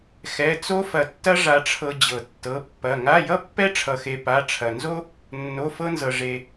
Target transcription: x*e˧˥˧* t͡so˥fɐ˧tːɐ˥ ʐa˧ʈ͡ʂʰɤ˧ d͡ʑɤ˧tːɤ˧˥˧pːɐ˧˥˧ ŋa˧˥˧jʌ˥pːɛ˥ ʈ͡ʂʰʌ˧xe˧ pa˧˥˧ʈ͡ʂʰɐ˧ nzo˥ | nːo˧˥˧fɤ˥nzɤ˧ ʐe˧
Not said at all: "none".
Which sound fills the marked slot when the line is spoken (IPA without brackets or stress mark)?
ɛ˧˥˧